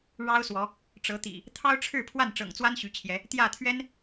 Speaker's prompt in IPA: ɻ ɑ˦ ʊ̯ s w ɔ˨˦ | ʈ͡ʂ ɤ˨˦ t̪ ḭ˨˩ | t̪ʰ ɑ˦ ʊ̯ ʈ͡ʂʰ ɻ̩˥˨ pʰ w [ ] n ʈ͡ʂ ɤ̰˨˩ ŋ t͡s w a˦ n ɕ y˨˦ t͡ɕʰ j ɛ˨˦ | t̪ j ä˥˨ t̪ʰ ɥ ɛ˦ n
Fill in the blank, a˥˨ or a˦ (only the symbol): a˥˨